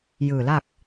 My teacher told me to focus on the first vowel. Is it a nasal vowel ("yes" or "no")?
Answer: no